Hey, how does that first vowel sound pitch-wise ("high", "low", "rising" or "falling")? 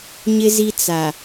high